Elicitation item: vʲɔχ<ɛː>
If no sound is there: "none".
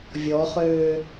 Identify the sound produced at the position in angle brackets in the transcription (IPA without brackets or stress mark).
øː